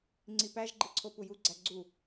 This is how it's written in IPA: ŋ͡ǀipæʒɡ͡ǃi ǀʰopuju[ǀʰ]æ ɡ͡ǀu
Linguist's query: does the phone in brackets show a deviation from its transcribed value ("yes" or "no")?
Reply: yes